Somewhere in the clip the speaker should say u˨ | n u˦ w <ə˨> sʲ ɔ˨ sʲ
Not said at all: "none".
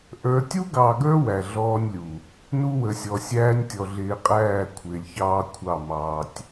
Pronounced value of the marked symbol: ə˨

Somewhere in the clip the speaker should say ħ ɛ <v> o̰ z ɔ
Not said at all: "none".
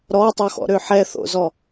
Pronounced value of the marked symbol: θ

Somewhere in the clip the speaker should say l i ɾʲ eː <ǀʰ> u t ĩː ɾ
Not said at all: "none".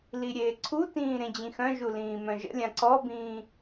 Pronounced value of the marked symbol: ǀʰ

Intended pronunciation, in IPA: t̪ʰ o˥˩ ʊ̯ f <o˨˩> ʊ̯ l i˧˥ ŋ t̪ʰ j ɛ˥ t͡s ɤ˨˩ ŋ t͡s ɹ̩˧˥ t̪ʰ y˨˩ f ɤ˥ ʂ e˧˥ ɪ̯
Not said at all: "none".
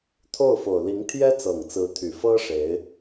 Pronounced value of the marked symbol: o˨˩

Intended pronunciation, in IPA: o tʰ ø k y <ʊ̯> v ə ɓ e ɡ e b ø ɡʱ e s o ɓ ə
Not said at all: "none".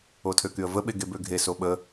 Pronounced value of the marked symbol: ə̯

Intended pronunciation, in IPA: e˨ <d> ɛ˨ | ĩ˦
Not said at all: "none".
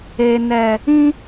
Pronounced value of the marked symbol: n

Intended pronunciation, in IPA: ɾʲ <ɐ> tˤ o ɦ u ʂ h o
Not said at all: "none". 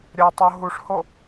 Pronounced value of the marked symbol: ɐ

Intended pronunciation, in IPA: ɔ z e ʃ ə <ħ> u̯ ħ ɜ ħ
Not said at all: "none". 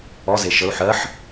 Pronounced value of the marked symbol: none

